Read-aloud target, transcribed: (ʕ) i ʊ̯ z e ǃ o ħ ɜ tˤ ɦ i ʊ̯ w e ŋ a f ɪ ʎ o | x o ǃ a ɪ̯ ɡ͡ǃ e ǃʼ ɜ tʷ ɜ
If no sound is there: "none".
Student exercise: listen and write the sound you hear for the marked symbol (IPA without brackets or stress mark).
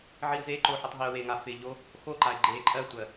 ʕ